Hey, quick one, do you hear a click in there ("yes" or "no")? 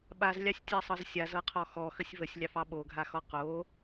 no